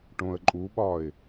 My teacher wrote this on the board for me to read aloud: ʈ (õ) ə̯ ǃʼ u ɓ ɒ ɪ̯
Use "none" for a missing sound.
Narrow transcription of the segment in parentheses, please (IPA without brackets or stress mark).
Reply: õ